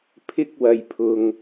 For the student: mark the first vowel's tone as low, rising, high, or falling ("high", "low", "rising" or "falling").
high